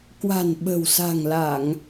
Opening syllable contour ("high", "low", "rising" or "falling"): low